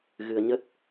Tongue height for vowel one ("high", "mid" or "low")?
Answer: high